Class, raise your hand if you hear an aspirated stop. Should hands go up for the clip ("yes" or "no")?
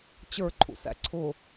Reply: yes